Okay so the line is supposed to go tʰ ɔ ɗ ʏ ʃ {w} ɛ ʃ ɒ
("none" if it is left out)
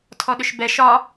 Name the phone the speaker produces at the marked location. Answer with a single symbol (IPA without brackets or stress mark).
b